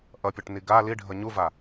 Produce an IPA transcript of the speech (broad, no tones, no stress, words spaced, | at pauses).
ʔʌpʲʌʈni ɡa liɖʱʌ ɲuva